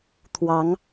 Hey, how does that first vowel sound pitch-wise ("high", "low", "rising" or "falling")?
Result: rising